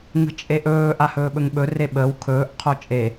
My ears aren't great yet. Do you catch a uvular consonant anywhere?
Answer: yes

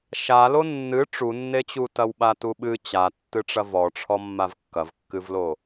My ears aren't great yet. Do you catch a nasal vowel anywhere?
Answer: no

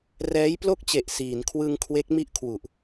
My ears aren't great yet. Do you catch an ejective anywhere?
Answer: no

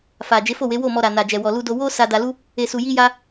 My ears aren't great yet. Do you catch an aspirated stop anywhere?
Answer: no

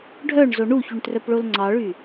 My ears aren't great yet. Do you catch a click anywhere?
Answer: yes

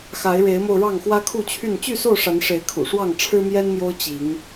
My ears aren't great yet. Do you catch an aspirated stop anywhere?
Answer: yes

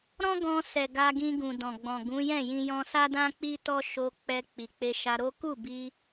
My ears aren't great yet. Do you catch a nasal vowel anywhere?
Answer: yes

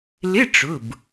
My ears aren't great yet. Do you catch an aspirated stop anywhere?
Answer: no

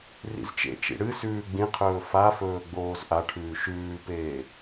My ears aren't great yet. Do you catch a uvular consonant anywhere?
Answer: yes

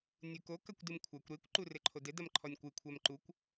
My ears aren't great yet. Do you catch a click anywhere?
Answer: yes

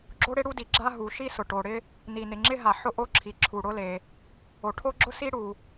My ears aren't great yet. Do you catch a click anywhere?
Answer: yes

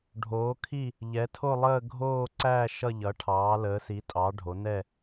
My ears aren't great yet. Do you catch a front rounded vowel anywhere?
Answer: no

